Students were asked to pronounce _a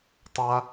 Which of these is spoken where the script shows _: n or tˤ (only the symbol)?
tˤ